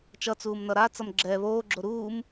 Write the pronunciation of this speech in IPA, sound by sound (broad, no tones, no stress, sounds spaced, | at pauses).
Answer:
t͡ʃ ʌ t͡s uː m n ʌ ɾ a t͡s ʌ m ɡ͡ǁ ɛ β oː ɡ͡ǁ o ɾ uː m